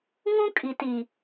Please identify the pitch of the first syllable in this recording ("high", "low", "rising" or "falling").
high